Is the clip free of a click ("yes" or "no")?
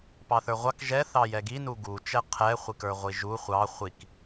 yes